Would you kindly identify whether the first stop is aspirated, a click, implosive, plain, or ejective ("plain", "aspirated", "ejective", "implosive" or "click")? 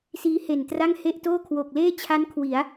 plain